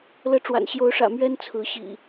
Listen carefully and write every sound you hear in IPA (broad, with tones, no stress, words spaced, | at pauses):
lɤ˨˦ʈ͡ʂwa̰˨˩nɕjo˨˦ʊ̯ʂä̰˨˩ mɥɛ˦n t͡sʰɹ̩˨˦ ɕḭ˨˩